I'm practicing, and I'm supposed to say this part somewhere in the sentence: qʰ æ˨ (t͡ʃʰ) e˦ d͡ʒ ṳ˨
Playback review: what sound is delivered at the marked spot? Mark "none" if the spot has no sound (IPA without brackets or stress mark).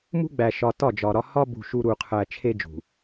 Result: t͡ʃʰ